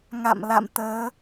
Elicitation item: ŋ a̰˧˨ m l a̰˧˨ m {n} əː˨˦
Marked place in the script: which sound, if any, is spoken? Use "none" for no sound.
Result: t̪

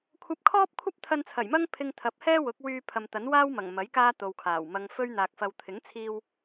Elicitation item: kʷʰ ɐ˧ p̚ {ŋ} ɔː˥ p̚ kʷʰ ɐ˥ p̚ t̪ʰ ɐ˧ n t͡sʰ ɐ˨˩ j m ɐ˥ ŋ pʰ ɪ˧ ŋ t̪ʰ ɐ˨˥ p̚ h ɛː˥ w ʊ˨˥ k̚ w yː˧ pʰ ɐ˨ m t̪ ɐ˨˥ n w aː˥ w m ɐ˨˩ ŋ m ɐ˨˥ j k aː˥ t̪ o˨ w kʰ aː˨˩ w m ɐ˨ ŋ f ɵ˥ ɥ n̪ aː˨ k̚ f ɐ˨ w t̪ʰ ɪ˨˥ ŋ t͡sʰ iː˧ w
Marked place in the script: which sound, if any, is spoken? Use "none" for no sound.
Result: kʰ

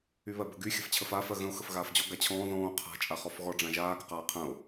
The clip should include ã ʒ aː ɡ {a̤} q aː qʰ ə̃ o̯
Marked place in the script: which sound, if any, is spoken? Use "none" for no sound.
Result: ə̤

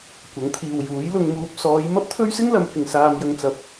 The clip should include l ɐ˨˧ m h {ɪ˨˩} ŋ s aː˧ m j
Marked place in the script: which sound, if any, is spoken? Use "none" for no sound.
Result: ɪ˨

